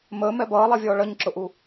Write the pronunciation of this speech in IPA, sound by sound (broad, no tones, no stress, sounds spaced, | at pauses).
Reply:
m əː m ɛ b ʌː lˠ ɛ vʲ ɔː ɭ ʌ ɲ ǁ ʊ ʔ u